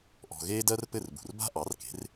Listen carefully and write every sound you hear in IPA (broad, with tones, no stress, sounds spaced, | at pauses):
ʔ ɔ̤˩ ɣ eː˥ d ɜ˥ r p ɘ˥˩ r b ṳ˩ r b a̤˥ ʔ ɑ˩˥ r k e̤˩˥ r